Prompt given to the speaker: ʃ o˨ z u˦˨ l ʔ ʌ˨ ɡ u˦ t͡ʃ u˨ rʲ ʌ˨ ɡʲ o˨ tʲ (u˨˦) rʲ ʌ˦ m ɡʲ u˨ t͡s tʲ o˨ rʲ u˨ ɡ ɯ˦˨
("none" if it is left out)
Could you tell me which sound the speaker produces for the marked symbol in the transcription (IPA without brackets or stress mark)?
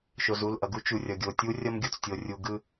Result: u˦